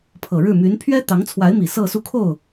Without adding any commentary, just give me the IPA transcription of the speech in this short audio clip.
pʰ ɤ˨˩ ɻ ɻ̩˥˩ m y˧˥ n pʰ ɥ ɛ˥ t̪ ɑ˧˥ ŋ t͡sʰ w a˧˥ ɪ̯ m i˨˩ s ɤ˥˧ s u˥˧ kʰ o˥˩ ʊ̯

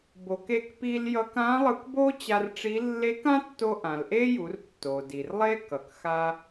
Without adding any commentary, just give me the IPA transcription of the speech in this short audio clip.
b o˩ k e˧ k p i˧ l j ʌ˧ k ã˧˥ lˠ ɯ˧ k b o˥ t͡ɕ a˧ r ʈ͡ʂ i˧˥ lː e˧˥ k ã˥ tː o˧ ʔ ã˩ l ʔ e˥ j u˩˧ r tː o˩ d i˩ r lˠ e˥ k ʌ˩ k x a˧

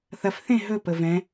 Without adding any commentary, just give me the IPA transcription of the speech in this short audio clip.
θ ɐ f θ ẽ ɦ ɵ p ə v ɛ̃

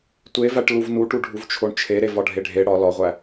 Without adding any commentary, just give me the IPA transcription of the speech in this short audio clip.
tʷ e v æ ʈ l u v n u ʈ u ɖʱ u v t͡ʃʰ o ɳ t͡ʃʰ e ɾ e v ɒ ɖʱ e ɖʱ e ɽ ɒ l ɒ ʁʷ æ

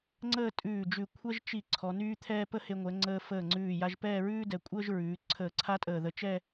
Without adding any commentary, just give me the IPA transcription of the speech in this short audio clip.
ŋ͡ǀ əː˥˧ tʼ ʉː˧˩ d͡ʒ ʉ˧˩ kʷʰ ɛ˥ ʒ t͡ʃ i˧˩ ǀʰ ɔ˩˧ n yː˥ t̪ʰ ɛː˥ p ə˥ h e˧ ŋʷ ɛ˩˧ ŋ͡ǀ əː˧ f əː˧˩ ŋ͡ǀ ʉː˧˩ j a˧ ʒ p ɛː˥˧ ɹ ʉː˥ d ɛ˩˧ kʷʼ əː˥ ʒ ɹ ʉː˩˧ ǀʰ əː˧˩ ǀʰ a˥ tʼ əː˧˩ ð ə˧ t͡ʃ ɛ˥˧

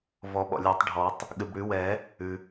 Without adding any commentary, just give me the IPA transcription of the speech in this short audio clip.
v ɔ˨˩˦ ɓ ɔ̰˩ lʲ ɔ˨˩˦ tˤ ɖʱ ɔ˨˩˦ tˤ | ɠ ɨ˩ b ɽ ʉ˨˩˦ w ɛ˨˩˦ | ʉ˩

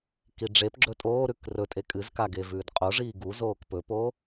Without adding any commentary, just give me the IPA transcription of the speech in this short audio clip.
k i ɖ͡ʐ e p ɡ͡ǁ ɵ tʼ oː ɾ ʉ k r ɵ tʼ e kʼ ɨ z k a ɡ e v ʉː d qʼ o ʐ iː ɡ u z oː k p ɵ p o

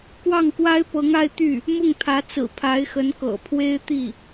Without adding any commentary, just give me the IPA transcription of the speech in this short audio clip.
k w ɑ˥˩ ŋ k w a˥ ɪ̯ p ɤ˧˥ ŋ a˥ ɪ̯ t̪ y˥˩ | m ʊ˥˩ ŋ t̪ʰ ä˧˥ t͡s ɹ̩˨˩ pʰ a˧˥ ɪ̯ x ə˧˥ n k ɤ̰˨˩ pʰ w e˥ ɪ̯ t̪ i˥˩

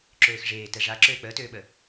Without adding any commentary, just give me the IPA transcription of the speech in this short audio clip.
ǁ øː x ʐ eː t ɛ ʐ a ǁ øː k͡p əː t øː ɓ ə

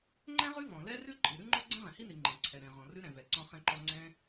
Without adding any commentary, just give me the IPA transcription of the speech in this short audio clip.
ŋ͡ǃ ɛ̃˥ ʁ ʉ˥ v ɔ̃˩ l ɛ˥ r ʉ˥ ǃʼ i˩ ɾ ʉ˥ ŋ͡ǃ ɔ˥ ɡ͡ǀ ɛ̃˥ ʁ ɛ̃˩ h i˥ n i˩ ŋ͡ǃ ɛ̃˩ ǀʰ ɛ˩ ɾ ɛ̃˩ ʁ ɔ̃˩ r ʉ˥ ɾ ɛ̃˩ v ɛ˩ ǀ ɔ̃˥ χ ɛ̃˥ ǃ ɔ˥ ŋ͡ǀ ɛ̃˥

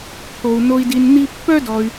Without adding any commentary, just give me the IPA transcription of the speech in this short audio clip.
t̪ʰ o˧ u̯ n o˧ i̯ d i˧ n n̪ i˥ pː œ˥ d ɔ˧ y̯

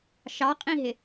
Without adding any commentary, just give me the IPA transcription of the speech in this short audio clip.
ʃ ɑ qʼ ĩ ɦ ɪ

